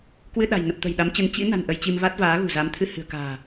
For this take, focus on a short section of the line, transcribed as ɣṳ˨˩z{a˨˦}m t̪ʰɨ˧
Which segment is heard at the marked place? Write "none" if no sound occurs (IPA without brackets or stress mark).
a˨˦